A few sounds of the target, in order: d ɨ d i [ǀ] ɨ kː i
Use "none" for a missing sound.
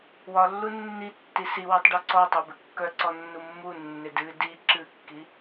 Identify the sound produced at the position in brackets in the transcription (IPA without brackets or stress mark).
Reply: ǁ